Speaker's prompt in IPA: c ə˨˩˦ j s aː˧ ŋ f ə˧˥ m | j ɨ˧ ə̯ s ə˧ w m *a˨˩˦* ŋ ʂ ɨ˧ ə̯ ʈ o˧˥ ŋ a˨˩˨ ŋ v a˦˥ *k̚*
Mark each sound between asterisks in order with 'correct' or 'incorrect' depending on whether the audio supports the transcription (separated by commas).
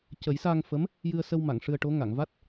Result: incorrect, incorrect